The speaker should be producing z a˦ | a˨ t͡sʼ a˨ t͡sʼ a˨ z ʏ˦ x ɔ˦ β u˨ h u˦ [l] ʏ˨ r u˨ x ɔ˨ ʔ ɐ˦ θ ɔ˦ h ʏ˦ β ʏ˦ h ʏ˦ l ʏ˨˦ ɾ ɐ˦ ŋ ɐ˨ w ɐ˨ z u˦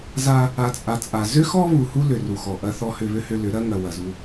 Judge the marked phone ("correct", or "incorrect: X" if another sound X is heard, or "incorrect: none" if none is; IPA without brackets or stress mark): correct